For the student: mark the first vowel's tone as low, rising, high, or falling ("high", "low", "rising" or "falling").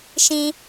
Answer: low